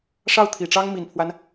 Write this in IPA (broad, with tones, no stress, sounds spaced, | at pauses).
ʂ ɑ˥˩ ʊ̯ t̪ʰ i˨˩ ʈ͡ʂ ɑ˥ ŋ m i˨˩ n pʰ w a˦ n